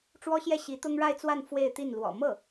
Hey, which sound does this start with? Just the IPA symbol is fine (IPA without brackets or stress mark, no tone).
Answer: ʈ͡ʂ